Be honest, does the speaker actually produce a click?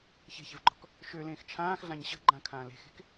yes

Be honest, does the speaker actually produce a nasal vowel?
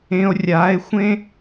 yes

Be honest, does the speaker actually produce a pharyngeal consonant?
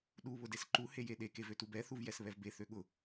no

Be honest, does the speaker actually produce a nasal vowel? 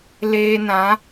yes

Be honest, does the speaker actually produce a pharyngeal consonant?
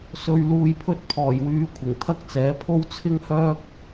no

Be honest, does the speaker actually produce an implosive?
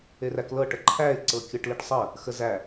no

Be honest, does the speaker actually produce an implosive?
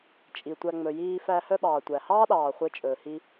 yes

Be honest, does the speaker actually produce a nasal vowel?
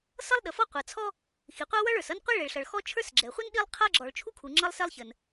no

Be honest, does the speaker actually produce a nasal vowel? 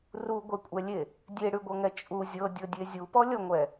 no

